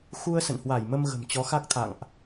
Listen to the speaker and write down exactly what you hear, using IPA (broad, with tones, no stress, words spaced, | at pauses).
xu˧ə̯ sə̰˧˨nhwa˧˩jmə˧m ɣə̤˨˩mt͡ɕɔ˨˦xa˦˥k̚t̪ʰa̰˧˨ŋʔ